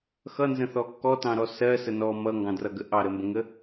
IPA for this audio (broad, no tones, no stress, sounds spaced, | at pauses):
x ʌ n z ə̃ θ ɔ kː ɔ t ɑ̃ ɾ ɔ s ɜ s ə n ɔ m ʌ ŋ ɡ ɑ̃ d r ʌ ɡ ə ʔ ɑ ɾ ə m b ə̃ ŋ ə